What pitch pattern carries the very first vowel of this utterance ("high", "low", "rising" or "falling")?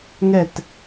falling